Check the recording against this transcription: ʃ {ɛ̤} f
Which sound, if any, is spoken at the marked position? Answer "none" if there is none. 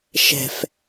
ɛ̤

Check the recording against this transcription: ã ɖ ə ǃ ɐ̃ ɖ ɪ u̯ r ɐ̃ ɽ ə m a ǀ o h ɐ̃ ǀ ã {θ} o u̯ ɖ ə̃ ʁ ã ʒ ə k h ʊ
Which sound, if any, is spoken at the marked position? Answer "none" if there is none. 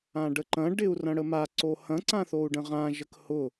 θ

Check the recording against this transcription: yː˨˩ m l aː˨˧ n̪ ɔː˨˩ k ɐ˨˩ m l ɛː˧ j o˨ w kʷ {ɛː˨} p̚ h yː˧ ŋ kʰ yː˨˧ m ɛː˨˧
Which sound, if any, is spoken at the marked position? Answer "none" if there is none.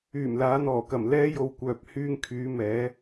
œː˨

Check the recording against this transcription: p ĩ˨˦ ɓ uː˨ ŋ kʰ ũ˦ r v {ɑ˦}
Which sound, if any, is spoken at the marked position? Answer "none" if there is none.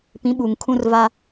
a˦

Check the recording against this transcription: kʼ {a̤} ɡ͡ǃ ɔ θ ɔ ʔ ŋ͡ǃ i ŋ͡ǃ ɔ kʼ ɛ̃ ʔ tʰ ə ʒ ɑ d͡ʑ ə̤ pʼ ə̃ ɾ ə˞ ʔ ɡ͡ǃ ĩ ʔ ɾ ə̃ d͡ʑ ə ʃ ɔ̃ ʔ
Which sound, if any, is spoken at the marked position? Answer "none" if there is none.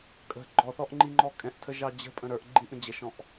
ə̤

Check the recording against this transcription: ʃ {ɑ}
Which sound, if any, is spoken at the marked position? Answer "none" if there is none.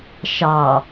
ɑ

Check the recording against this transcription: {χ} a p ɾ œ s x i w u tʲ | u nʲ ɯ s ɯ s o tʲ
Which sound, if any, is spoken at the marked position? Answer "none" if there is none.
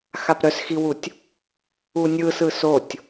x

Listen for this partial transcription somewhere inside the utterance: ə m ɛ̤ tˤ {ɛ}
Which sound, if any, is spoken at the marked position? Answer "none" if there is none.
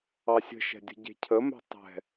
ɛ̤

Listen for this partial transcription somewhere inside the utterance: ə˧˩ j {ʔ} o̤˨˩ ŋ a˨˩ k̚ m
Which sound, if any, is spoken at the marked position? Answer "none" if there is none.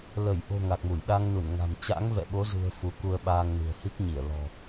ʔ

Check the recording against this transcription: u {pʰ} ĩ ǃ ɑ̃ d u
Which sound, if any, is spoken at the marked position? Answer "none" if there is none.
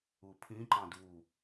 pʰ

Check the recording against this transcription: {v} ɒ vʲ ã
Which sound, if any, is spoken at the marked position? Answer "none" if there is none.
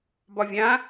b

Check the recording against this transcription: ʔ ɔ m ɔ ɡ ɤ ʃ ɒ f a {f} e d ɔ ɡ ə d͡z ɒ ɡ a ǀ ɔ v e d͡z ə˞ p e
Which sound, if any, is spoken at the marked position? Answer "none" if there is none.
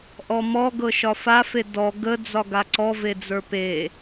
f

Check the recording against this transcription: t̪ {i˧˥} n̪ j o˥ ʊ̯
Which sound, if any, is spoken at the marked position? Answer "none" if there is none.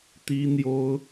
i˥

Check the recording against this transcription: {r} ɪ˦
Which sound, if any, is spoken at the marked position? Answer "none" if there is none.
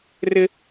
r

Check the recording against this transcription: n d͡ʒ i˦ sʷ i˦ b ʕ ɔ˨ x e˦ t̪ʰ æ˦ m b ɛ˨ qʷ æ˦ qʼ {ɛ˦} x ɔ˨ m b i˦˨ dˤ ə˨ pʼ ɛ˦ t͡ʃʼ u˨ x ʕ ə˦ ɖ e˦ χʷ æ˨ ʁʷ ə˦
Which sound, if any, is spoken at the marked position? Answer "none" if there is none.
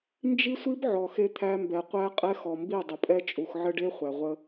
ɛ˦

